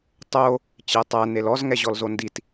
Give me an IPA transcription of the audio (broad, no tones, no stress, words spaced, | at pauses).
tˤo | t͡ɕetˤæ nelɔz ŋɛʑɔlzondit